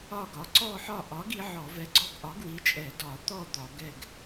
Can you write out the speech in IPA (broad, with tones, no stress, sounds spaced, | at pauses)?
ɒ˦˨ ɡ ɒ˨˥ ǀ ɔ˦˨ ħ ɒ˦˨ ʔ ɒ˨˥ ɡ i˨˥ ʕ ɔ˧˩˧ v ɛ˨˥ ɡ͡ǀ ɔ˦˨ ɡ ʔ ɒ˨˥ ɡ w i˨˥ t͡ʃʼ ɛ˧˩˧ d ɒ˧˩˧ t̪ ɔ˦˨ d̪ ɒ˧˩˧ ɡ ɛ˦˨ ɡ